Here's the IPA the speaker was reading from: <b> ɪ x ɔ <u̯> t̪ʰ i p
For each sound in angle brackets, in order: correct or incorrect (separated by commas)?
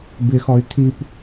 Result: correct, incorrect